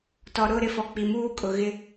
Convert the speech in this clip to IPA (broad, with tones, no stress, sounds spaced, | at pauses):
t ɔ˨ ɾ ʊ˦˨ ɾ ɪ˦ f ɔ˨ k͡p i˨ m uː˦ kʼ ʊ˨ ɣ ɪ˦